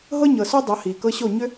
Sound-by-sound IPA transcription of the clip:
ɦɤ˦ɲɤ˨so˦ dˤɤ˨˦hiː˨kɤ˦ɕo˦˨ ɲʏ˦

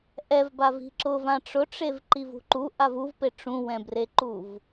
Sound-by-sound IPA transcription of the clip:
ʔɛvbavi̤ ǁʊvã ʈ͡ʂʊʈ͡ʂevǃivṳ ǃuʔav uvpe ʈ͡ʂũwɛ̃breǃuv

